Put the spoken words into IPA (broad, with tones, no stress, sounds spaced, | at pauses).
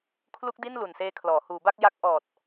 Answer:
kʰ l u˦˥ k̚ d i˥˩ n l u˨˩ n s eː˦˥ kʰ l ɔː˩˦ h uː˩˦ b a˥˩ k̚ j a˦˥ k̚ ʔ ɔː˨˩ t̚